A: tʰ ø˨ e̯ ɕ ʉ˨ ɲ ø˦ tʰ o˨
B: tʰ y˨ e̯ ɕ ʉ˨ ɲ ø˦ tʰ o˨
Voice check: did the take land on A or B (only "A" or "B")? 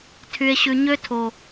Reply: B